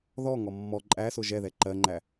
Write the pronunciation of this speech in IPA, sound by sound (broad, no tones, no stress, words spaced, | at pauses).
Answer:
ðɔ ŋɔmːɔ ǃʼæsʊ ʒɛðɛ ǃɜŋ͡ǃæ